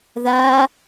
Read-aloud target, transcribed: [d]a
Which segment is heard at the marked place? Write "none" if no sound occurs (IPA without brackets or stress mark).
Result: ð